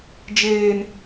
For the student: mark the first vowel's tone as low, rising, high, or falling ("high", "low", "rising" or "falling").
high